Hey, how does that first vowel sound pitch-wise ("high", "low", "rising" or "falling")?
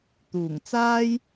low